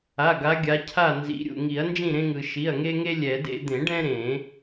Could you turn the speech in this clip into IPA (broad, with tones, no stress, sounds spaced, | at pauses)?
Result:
a˩˧˩ ɡ a˨˦ ɡʲ a˨˦ cʰ a˥˨ n z ḭ˨˦ ɾʲ ṵ˩ ŋ i˨˩˦ ɐ̯ n d͡ʒ ĩ˥˨ ɾ ẽ˦ ŋ ɯ˩ ʃ i˩˧˩ ɐ̯ ŋ e˦ ŋ e˦ lʲ ɛ˨˩˦ d ḛ˦ d̪ ẽ˨˩˦ ɖ ɛ̃˦ ɾ ẽ˨˩˦